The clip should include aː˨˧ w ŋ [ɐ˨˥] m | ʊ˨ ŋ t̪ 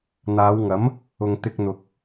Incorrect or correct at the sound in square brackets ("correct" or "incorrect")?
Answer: correct